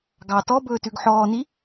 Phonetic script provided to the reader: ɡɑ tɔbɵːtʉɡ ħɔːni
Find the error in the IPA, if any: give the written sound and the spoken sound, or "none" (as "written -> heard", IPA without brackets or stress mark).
none